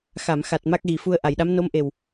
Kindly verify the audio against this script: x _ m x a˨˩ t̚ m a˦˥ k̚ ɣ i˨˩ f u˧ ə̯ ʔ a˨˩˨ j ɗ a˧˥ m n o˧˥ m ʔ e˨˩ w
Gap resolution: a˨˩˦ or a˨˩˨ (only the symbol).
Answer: a˨˩˨